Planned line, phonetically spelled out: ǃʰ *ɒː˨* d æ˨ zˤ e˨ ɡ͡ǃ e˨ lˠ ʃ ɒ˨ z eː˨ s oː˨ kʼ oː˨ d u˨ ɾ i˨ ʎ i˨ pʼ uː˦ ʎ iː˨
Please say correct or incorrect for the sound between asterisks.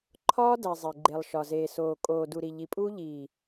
incorrect